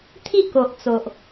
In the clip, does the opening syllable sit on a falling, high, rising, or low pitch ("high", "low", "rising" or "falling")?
falling